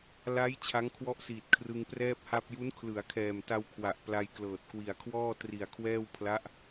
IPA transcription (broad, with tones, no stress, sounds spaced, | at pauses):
l a˦˥ j t͡ɕʰ a˦˥ ŋ kʰ w ɔ˦˥ ʔ s iː˨˩ t̚ kʰ r ɯ˧ ŋ p r ɛː˥˩ p̚ h a˥˩ p̚ j u˦˥ n kʰ l ɯ˩˦ a̯ kʰ ɛː˨˩ m t a˧ w kʰ w a˨˩ ʔ p l a˧ j k l ɤː˨˩ t̚ k w i˨˩ a̯ kʰ w ɔː˥˩ t r i˨˩ a̯ kʰ w ɛː˥˩ w pʰ l a˦˥ ʔ